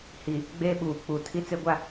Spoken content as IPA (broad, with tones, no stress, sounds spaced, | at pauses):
h i˨ | ɡ͡b e˦ ɓ uː˨ k͡p u˨ tʰ i˦ t͡s e˦ ɡʷ a˦